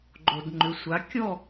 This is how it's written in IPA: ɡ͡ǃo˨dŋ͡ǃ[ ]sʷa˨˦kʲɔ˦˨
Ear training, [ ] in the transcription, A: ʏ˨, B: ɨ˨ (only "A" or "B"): A